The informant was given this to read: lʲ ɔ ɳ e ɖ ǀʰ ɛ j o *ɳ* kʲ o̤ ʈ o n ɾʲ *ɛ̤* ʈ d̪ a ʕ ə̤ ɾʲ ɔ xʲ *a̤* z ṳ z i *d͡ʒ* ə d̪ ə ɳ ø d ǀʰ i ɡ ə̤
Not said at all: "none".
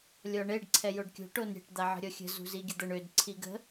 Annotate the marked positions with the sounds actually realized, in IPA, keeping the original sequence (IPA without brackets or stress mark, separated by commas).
ɖ, ɛ̤, ə̤, ɡʲ